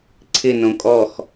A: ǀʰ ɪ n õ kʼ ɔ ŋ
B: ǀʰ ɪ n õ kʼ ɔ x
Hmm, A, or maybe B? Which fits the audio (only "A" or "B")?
B